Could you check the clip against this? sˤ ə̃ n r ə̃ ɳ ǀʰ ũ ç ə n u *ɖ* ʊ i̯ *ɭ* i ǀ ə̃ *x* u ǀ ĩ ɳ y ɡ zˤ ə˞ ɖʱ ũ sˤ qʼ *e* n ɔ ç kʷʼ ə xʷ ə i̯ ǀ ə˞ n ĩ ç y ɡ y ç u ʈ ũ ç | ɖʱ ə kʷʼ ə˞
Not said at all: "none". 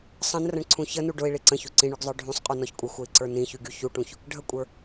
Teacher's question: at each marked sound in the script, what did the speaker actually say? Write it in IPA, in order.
ɖ, ɭ, ç, y

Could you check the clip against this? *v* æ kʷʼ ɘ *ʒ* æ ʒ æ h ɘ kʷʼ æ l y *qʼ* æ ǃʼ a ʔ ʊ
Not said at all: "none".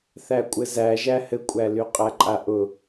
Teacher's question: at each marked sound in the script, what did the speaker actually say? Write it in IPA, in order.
θ, z, qʼ

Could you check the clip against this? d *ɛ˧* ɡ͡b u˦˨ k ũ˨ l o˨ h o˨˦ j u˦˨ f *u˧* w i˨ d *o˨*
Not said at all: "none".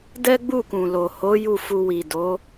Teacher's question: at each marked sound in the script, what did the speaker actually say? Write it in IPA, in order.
ɛ˦, u˧, o˨˦

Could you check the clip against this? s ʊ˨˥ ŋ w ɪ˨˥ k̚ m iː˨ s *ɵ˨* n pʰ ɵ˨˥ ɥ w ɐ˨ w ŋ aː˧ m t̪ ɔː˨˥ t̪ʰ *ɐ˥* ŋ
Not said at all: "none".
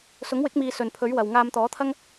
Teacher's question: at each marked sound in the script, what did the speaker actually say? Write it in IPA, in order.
ɵ˨, ɐ˥

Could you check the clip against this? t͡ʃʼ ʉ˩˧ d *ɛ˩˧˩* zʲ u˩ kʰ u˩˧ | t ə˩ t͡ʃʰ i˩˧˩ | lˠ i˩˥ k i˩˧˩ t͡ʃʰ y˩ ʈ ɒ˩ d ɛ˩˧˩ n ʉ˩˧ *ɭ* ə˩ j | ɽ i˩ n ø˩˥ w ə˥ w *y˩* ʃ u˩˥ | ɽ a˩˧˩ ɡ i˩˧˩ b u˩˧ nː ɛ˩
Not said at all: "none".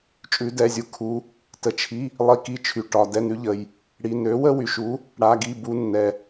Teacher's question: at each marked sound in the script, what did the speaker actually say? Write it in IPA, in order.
ɛ˩˧˩, ʎ, y˩

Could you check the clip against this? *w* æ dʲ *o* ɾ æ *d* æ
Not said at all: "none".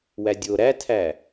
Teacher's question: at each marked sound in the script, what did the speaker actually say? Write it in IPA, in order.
w, o, tʰ

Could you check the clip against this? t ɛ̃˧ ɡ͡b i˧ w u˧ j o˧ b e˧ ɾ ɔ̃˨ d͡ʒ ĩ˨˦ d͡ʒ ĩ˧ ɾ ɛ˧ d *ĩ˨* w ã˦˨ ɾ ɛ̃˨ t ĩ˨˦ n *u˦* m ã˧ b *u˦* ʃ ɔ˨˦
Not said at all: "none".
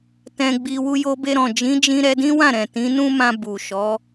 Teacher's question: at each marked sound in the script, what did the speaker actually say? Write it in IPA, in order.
ĩ˦, ũ˦, u˨

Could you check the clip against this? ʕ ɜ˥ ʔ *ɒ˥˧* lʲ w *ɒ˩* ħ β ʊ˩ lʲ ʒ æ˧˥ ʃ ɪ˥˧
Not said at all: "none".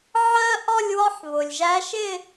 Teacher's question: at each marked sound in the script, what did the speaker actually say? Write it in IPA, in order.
ɒ˥˧, ɒ˥

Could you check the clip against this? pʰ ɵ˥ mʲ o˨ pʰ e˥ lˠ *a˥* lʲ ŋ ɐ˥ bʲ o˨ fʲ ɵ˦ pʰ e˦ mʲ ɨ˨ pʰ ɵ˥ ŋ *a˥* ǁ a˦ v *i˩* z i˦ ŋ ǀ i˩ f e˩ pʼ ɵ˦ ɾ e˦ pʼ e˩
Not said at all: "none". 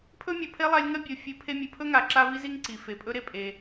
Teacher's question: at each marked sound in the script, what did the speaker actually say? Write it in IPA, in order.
a˦, a˨, i˦

